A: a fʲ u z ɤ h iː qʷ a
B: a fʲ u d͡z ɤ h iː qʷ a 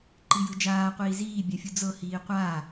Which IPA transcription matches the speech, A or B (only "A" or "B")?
B